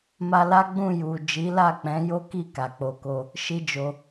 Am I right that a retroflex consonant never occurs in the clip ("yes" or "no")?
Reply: yes